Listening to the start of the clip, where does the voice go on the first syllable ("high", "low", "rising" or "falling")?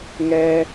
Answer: high